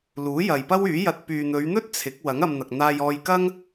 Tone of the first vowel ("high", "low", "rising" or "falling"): rising